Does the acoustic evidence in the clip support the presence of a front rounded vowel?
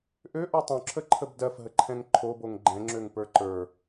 yes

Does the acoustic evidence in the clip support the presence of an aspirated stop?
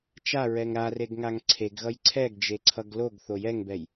yes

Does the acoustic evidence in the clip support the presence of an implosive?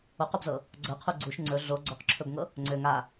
no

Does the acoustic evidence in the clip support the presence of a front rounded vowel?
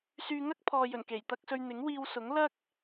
yes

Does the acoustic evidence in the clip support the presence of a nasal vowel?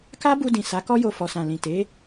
yes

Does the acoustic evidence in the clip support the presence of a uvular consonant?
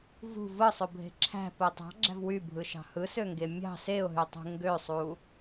no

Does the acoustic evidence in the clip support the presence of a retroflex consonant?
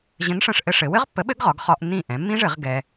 yes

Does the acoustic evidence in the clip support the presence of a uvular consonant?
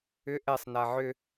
no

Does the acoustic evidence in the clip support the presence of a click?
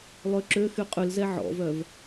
yes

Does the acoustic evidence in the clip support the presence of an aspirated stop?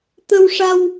no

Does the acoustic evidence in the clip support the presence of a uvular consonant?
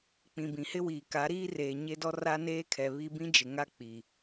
no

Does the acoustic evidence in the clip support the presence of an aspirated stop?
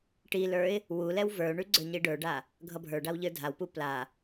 no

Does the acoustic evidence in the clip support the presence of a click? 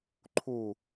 yes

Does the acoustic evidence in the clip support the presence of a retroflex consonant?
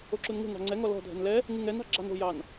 no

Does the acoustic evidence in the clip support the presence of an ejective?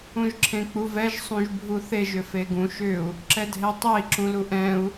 no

